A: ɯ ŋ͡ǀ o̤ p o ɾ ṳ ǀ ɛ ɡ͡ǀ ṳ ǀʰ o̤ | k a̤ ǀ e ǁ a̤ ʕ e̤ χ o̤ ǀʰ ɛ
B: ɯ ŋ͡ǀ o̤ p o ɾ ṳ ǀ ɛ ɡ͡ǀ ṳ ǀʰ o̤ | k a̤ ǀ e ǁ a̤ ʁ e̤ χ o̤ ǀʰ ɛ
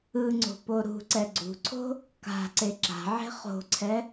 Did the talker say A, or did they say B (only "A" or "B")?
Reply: A